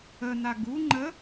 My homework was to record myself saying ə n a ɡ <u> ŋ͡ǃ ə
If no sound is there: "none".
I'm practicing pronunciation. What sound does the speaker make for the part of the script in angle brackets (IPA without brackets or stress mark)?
u